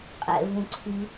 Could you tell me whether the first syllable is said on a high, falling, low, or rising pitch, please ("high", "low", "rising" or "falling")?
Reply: high